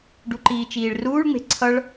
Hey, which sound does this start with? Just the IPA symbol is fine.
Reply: ɖ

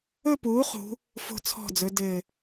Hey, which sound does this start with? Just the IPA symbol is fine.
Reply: ɵ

